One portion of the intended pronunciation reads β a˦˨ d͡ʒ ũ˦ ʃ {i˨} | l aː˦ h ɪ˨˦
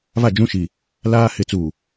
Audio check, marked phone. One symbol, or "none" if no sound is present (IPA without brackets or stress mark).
i˨